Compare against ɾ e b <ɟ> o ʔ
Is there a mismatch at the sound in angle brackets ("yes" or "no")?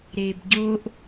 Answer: no